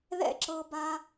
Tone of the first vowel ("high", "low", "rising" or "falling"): high